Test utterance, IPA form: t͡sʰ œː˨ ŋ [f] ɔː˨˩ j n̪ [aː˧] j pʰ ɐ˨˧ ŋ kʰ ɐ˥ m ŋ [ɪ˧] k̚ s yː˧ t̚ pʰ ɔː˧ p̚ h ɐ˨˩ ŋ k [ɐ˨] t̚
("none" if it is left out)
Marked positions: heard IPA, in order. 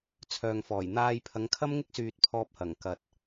f, aː˧, ɪ˥, ɐ˨

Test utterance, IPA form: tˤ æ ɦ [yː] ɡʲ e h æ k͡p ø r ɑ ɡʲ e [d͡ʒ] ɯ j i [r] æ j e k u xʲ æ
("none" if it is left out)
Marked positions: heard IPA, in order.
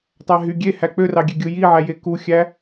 y, ɡʲ, ʕ

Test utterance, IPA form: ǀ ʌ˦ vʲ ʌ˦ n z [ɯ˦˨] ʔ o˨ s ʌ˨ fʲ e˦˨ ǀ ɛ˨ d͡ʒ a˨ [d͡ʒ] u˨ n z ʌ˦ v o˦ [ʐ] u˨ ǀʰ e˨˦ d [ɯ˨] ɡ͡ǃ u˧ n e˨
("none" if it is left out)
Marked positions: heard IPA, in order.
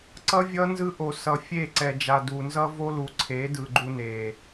ɯ˧, d, l, ɯ˨

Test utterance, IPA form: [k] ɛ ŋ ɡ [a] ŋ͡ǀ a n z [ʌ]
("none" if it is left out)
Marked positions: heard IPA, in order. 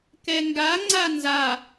k, a, a

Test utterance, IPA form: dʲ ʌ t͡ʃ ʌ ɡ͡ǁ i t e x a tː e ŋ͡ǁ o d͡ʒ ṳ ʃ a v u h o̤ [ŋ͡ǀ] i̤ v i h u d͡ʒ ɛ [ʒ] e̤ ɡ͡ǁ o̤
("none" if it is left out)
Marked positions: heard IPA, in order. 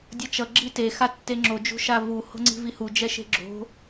ŋ͡ǀ, ʃ

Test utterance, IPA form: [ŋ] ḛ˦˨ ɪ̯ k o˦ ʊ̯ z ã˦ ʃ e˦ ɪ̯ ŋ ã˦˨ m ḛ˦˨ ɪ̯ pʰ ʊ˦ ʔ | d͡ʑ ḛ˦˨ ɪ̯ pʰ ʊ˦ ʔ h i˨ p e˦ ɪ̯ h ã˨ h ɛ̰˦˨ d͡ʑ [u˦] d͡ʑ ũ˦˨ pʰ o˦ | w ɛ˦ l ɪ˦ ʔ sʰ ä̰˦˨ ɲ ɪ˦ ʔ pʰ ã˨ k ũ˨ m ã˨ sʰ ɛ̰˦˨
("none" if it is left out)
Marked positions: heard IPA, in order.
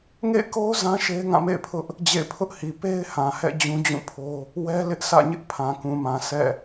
ŋ, ũ˦

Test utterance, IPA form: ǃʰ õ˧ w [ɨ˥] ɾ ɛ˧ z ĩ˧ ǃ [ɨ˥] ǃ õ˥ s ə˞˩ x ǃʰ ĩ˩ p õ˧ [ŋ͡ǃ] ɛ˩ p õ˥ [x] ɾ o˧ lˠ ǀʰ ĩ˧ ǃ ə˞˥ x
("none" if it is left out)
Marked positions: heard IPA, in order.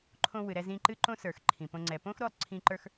ɨ˩, ɨ˥, ŋ͡ǀ, x

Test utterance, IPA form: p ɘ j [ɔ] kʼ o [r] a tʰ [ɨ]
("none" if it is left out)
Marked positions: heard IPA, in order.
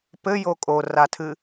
o, r, ɨ

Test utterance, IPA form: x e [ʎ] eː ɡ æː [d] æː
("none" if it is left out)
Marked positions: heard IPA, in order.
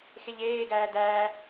ʎ, d

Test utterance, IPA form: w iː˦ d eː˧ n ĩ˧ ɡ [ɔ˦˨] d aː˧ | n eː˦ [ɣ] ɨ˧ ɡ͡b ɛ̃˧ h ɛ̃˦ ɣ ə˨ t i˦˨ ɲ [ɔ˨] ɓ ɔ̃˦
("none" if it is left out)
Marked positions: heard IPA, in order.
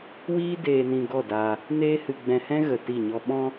ɔ˦˨, h, ɔ˦

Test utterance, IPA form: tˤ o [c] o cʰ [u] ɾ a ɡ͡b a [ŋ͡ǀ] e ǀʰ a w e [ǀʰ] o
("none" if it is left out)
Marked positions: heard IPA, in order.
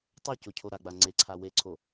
c, o, ŋ͡ǀ, ǀʰ

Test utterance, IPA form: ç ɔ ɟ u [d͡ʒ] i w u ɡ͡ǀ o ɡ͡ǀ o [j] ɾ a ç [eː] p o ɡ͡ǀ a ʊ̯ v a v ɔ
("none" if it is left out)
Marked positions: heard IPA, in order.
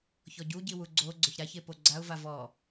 ɟ, ç, e

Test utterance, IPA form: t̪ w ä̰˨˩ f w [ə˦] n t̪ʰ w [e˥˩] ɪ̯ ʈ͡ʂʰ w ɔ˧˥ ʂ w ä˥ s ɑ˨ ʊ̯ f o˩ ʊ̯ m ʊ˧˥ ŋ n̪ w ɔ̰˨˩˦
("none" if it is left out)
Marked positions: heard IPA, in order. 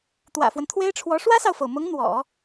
ə˦, e˥

